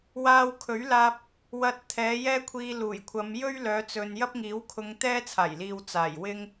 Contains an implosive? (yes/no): no